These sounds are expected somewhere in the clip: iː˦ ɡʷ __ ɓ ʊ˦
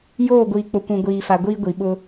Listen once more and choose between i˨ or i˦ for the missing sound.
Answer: i˨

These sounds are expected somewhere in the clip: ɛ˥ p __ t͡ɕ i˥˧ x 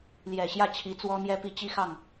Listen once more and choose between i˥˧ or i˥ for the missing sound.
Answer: i˥˧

